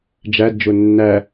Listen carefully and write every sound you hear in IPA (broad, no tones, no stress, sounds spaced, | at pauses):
d͡ʒ æ d d͡ʒ ʊ nː æ